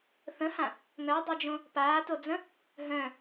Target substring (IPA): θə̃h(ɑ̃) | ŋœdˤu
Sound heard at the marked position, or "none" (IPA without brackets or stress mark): ã